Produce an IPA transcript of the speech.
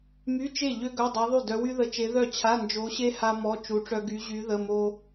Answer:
m y˧˥˧ t͡ʃ e˥˩ ʎ ø˥ ɡ œ˧˥˧ dˤ œ˧˥ ðˤ y˥˩ d œ˧˥ w y˥ ð ə˧˥˧ t͡ʃ e˧˥ ð œ˥˩ t͡ɕʰ a˧˥˧ n d͡ʒ o˧˥ ɕ e˥ h a˥ m ɔ˧˥˧ t͡ʃ u˧˥ ʈ͡ʂ œ˥ ɡ y˧˥ ʑ y˧˥ ð ə˧˥˧ m o˥

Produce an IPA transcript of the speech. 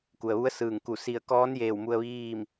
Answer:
k u˩ ə̯ ʋ u˧˥ ə̯ s ɯː˧˩ ŋ k u˧˩ s i˧˩ ə̯ k ɔː˧˥ n j eː˧˩ w m u˧ ə̯ ʋ iː˥˨ m

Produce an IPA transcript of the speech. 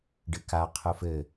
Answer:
ɖ ɨ k a qʰ u f ɘ

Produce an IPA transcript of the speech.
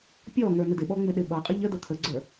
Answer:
pʲ ɔ ŋ ə˞ n ɪ d ɪ ɓ ɔ ŋ͡m ɪ ɗ ɪ ɓ ʌ qʼ ə ʎ ə d ə t̪ʰ ə ɡ͡ǀ ə˞

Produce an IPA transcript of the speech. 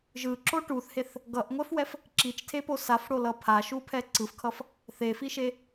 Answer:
ʒ ɯ ǁ o ʈ u θ h e θ | ɡ ʌ ʔ ŋʷ ɛ f w ɛ f | ǁ i t͡ʃ tʰ e p o s a f ɽ o l ʌ pʰ a ʃ u pʰ ɛ ǀ ɯ f kʰ ʌ f | θ e f i ʃ e

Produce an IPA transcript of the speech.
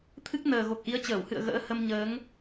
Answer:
t̪ʰ ɨ˦˥ k̚ n əː˨˩ ɣ o˨˩ k̚ ʔ i˨˦ ə̯ t͡ɕ əː˧˩ w h ɨ̰˧˨ ə̯ ɣ ə̰ː˧˥ h ə˧ m ɲ əː˨˦ ŋ

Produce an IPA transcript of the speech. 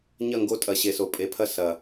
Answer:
ɲ ɐ˦˨ ŋ ɡ o˧ tʼ ɐ˨ ɕ e˨ s o˨ pʼ e˨ pʰ ɐ˦ s ɐ˨

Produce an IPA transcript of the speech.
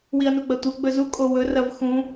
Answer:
w i ɐ̯ n u ɡ͡b ɐ tʷ ɐ ɡ͡b ɵ z u kʼ o w ɵ r ɐ v x ũ

